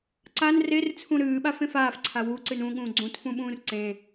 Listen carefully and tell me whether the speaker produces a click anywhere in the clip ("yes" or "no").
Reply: yes